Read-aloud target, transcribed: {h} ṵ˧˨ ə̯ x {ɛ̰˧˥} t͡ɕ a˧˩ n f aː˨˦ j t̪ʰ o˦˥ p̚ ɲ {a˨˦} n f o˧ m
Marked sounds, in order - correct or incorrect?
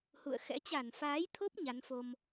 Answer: correct, correct, correct

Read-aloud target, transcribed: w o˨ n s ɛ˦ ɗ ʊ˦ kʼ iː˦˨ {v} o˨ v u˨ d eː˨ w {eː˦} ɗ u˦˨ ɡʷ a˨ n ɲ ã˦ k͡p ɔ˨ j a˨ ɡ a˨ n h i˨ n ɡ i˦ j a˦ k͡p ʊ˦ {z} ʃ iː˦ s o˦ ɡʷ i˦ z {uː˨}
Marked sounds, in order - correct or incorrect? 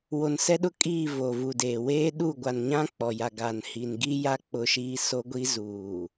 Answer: correct, correct, incorrect: none, correct

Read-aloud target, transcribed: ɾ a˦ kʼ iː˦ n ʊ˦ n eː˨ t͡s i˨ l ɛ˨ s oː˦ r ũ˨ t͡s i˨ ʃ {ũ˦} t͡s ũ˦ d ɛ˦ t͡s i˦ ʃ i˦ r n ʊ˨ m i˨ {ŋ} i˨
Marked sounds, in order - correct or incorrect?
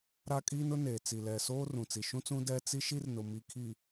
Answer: correct, incorrect: kʰ

